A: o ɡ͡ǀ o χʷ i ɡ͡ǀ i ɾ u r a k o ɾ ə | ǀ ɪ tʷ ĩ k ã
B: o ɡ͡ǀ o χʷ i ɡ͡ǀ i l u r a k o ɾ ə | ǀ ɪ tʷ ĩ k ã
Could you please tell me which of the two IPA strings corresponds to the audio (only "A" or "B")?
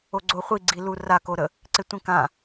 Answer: B